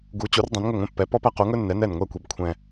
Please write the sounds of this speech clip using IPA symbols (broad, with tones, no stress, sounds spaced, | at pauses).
ɡ u˩˥ t͡ɕ u˩˥ r dˤ ɛ̃˩˥ n ŋ ɵ˥˩ ŋʷ ɛ̃˧ pː ɛ˩˥ p ɔ˥ p æ˥ q u˩˥ ŋ ɵ˥ nː ɛ˩˥ n ɛ˥˩ n ŋʷ ɛ˥˩ kʷ ɛ˧ b kʷʰ ɛ̃˧